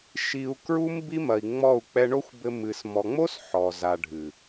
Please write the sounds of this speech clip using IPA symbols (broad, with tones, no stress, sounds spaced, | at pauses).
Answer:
ʃ i˧ u̯ k ɹ u˦ m b i˦ m ɐ˨ i̯ ŋ͡m ɔ˦˨ u̯ k͡p ɛ˧ ɳ o˦ xʷ b ɘ˧ m ɨ˨ s m ɔ˨ ŋ͡m o˦ s ħ ɔ˨ z a˨ ɖʱ ɨ˨